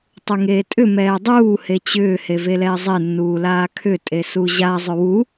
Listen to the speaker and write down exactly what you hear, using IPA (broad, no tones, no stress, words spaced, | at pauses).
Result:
tˤuŋeːtʼʏ mɛːdˤuː het͡ɕʏː hevelɛːzˤe nːuːlaːkʰʏ tʼesuʑa zˤʏwu